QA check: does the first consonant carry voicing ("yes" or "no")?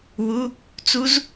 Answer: yes